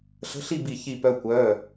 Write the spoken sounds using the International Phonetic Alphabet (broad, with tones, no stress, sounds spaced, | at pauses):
ɬ ə̤˧˥˧ ɬ i˥˨ b i˧˩ ç i˧˩ p œ˧ kʷ œː˩˧˩